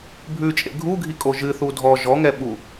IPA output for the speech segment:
bʱ ʉ t͡ʃʼ ḛ ɡʱ u ɡʱ i kʼ o ʒ ɨ θ u dʱ ɔ ʒ ɔ ŋ ɛ ɓ u

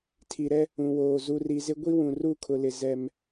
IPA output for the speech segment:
tʰ i˨ ɾ ɛ˦ | ũ˨ w oː˨ z u˨ r i˨ z ɪ˦ ɡʷ i˦ w ũ˨ r u˦˨ kʰ ʊ˨ l ɪ˨ z ɛ˦ m

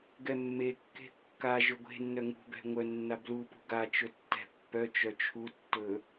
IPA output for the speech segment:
ɡ ɛ mː e kː e̤ kː a ʒ ɵ ɡʷ e̤ nː œ ŋ ṳ b ɛ̤ ŋʷ œ nː a b l u p ṳ ɡ a t͡ʃ ɵ tː ɛ̤ pː œ t͡ʃ œ t͡ʃʰ u tː ɵ

